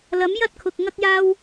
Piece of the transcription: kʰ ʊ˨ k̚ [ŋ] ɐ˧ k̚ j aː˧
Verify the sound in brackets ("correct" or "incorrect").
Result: correct